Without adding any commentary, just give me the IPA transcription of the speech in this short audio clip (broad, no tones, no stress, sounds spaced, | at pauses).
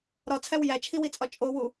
ɾ ɒ t͡sʰ æ w j æ t͡ʃʰ i w i t͡sʼ ɒ t͡ʃʼ o w u